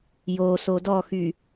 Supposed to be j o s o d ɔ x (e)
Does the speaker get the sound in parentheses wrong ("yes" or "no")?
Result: yes